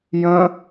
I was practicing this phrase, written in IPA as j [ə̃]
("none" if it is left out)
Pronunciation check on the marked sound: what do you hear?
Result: ə̃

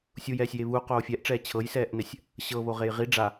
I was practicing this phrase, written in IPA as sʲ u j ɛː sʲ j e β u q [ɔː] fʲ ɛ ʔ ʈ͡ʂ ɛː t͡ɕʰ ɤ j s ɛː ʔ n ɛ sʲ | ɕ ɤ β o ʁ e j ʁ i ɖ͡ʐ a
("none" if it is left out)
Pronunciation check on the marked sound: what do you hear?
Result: oː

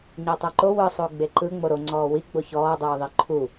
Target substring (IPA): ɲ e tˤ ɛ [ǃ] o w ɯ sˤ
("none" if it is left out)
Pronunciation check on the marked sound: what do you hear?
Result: ǃ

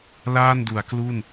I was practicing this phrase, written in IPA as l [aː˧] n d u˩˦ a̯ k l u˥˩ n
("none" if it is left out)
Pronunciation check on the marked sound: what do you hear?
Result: aː˥˩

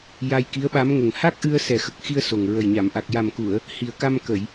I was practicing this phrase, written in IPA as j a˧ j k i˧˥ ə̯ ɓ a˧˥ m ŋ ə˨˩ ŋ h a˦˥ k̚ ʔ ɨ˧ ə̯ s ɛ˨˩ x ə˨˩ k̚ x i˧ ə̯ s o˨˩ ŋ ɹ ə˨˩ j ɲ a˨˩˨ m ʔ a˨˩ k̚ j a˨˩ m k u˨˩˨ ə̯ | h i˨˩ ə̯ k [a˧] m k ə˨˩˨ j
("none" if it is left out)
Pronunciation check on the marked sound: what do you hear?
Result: a˧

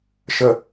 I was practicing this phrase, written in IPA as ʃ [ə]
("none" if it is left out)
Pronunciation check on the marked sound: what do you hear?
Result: ə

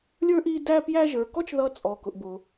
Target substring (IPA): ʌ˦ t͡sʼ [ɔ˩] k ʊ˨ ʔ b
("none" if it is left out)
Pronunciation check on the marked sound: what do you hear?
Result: ɔ˨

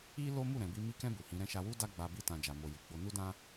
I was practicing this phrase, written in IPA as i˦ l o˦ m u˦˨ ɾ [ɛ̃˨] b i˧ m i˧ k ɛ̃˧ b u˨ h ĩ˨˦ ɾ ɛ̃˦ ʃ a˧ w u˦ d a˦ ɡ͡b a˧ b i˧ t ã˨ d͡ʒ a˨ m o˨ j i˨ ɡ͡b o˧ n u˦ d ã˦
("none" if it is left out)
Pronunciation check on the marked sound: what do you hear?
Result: ɛ̃˨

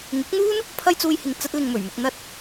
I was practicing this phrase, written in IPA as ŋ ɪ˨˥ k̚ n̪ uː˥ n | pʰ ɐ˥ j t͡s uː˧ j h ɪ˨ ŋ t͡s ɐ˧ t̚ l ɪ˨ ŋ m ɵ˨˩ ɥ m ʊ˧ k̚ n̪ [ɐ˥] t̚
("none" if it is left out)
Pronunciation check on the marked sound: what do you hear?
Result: ɐ˥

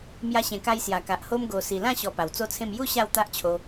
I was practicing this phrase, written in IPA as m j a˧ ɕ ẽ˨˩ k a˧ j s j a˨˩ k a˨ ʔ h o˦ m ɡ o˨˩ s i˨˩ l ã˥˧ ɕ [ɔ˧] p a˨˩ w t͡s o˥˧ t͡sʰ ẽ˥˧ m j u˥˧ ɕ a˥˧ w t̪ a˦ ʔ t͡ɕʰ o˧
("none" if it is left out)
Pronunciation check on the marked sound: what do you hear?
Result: ɔ˧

